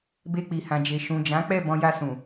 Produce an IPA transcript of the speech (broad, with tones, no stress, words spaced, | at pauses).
be˧k͡pi˨hã˨d͡ʒe˨ ʃũ˨d͡ʒã˨˦k͡pɛ˦˨ bɔ̃˧ja˧sũ˨